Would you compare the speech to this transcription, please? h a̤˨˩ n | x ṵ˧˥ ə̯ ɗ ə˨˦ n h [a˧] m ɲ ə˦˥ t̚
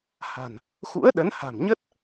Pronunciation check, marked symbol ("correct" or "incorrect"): incorrect